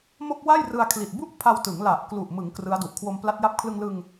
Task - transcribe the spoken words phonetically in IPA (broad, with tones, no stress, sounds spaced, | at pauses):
m o˥˩ k̚ w a˥˩ j r ɯ˧ a̯ kʰ l i˨˩ t̚ b u˥˩ ʔ pʰ a˧ w t ɯ˩˦ ŋ l a˨˩ ʔ k l u˨˩ ʔ m ɯ˩˦ ŋ k r ɯ˦˥ a̯ d u˨˩ ʔ kʰ w o˧ m p l a˦˥ t̚ j a˦˥ p̚ kʰ l ɯ˧ ŋ l ɯ˧ ŋ